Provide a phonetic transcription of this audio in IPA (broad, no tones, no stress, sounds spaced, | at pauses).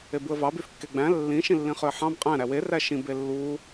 e b u ə̯ v ɑ b y f kː e ɡ͡b æ̃ lː ĩ ʃ ĩ lː ĩ χ ø ə̯ ħ ɑ̃ b qʼ æ̃ ɾ æ w e r æ ʃ ĩ b e lː u